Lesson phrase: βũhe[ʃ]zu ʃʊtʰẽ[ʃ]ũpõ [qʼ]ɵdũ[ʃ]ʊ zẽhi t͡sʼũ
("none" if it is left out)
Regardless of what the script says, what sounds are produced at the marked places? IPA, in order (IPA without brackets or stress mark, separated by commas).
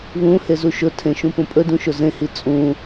none, ʃ, pʼ, ʃ